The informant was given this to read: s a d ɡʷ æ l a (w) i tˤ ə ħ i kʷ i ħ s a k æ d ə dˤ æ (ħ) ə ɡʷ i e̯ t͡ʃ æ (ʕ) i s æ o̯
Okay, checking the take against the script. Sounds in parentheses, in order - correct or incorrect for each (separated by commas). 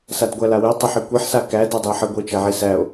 correct, correct, correct